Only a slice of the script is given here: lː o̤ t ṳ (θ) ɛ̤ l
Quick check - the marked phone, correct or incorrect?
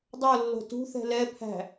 correct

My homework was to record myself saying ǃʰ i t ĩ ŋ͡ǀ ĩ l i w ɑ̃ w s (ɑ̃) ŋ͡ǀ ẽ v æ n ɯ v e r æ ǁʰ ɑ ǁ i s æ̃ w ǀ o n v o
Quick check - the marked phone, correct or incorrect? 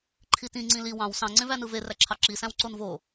correct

